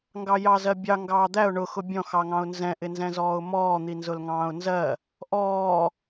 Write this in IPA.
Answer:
ŋ ɡ ɑ j ɑ z ɜ bʲ ɑ ŋ ɡ ɑː d̪ æ ʊ̯ ɳ ʊ x ʊ bʲ ɔ̃ x ɑ ŋ ɑ̃ ʊ̯ n z ɛ̃ ʔ ɪ n z ɛ̃ z ɔː ʊ̯ m ɔː n̪ i n z ʊ l ŋ ɑ̃ː ʊ̯ n z ɜ | ʔ ɔː

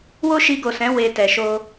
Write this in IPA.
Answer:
w o˦ ʃ i˧ ɡ o˨ s ɛ̃˨˦ w e˧ t ɛ˨ ʃ o˧

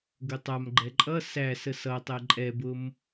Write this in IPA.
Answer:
ɡ ʊ tˤ a m ɡ͡ǃ ɛ ǃʼ ʌ s æ s ə s ʌ tˤ ɛ ǃʼ ɛ b ʊ m

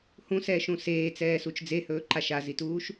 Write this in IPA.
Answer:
h ũ s ɛː ʃ ũ s eː t͡s ɛː s u t͡ʃ d͡z e h ɵː ǃ a ʃ a z i t uː ʃ

